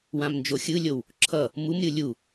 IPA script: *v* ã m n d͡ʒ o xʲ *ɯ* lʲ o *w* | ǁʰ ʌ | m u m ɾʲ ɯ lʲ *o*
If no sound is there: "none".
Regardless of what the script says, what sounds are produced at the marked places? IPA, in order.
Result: w, ɯ, w, u

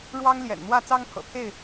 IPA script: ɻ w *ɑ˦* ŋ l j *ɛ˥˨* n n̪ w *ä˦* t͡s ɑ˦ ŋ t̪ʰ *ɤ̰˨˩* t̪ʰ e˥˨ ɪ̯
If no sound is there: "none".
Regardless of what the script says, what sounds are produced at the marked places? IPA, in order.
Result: ɑ˦, ɛ̰˨˩, ä˥˨, ɤ̰˨˩

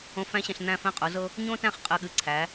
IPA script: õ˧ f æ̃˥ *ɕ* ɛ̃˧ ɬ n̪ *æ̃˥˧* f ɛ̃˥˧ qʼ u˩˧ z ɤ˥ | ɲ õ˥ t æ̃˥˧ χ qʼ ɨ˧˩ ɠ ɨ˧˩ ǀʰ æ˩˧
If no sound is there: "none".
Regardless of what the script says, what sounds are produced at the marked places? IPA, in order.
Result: ɕ, æ̃˥˧

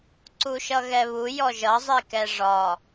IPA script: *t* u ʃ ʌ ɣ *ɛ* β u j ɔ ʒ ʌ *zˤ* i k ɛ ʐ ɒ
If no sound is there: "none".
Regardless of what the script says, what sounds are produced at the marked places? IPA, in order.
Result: ǀ, ɛ, zˤ

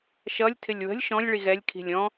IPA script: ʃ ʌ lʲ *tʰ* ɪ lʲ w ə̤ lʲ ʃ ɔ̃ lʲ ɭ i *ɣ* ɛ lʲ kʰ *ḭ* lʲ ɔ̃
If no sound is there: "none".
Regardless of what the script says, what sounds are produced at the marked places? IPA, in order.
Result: tʰ, ɣ, i̤

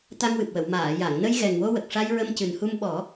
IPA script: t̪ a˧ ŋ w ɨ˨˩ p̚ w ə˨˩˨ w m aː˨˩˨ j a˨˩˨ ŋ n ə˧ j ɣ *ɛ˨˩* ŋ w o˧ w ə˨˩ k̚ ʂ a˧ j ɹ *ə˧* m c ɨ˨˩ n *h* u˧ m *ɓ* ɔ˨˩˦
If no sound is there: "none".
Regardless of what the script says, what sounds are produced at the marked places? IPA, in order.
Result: ɛ˨˩, ə˧, h, ɓ

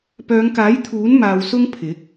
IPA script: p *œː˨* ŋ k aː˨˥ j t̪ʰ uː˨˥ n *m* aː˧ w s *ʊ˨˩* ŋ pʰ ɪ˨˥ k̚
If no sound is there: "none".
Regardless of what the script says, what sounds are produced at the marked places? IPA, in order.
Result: œː˨˧, m, ʊ˥

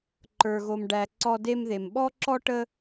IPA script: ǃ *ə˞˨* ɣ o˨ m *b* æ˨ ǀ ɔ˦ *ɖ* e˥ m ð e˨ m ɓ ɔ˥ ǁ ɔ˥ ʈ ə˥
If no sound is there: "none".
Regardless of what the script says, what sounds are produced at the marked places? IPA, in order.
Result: ə˞˨, ɖ, d

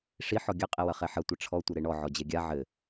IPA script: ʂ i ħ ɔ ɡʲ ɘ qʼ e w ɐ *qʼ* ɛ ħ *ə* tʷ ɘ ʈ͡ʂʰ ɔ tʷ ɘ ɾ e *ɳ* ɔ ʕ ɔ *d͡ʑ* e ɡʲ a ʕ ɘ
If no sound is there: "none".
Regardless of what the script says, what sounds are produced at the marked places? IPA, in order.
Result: χ, ɐ, ɳ, d͡ʑ

